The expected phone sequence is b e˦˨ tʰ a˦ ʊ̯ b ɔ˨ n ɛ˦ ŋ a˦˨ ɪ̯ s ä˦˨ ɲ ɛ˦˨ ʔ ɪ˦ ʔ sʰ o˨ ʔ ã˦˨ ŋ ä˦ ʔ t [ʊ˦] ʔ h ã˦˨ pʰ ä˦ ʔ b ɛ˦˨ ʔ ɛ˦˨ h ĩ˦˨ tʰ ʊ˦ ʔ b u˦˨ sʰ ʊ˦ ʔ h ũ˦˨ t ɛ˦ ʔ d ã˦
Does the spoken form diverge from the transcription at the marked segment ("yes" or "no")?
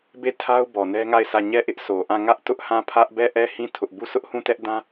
no